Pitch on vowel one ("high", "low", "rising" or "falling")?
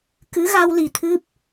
rising